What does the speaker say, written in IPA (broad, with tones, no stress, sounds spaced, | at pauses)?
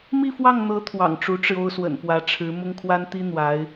m i˥˧ f w ɑ˥˩ ŋ n̪ ɤ˧˥ t̪ʰ w ɑ̰˨˩ ŋ ʈ͡ʂ u˧˥ ʈ͡ʂ ɻ̩˧ o˥ ʊ̯ s w ə̰˨˩ n p w ä˧˥ ʈ͡ʂʰ ɻ̩˧˥ m ʊ˥ ŋ kʰ w a˥ n t̪ i˥ n̪ w a˧˥ ɪ̯